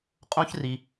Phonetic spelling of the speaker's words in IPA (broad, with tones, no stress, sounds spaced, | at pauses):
qʼ õ˥ ç r i˧